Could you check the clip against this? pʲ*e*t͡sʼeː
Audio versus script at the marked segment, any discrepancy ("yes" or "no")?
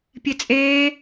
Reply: no